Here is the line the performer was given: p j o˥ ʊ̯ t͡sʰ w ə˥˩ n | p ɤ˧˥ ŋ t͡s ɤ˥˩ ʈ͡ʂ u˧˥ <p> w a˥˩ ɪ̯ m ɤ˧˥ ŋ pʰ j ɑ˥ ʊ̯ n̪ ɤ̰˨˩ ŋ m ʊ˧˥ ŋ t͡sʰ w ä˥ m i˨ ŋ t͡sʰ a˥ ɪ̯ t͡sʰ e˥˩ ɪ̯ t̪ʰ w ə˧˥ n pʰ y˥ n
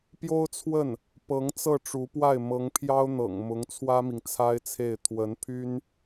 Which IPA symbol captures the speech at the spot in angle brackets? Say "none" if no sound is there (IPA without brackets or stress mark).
p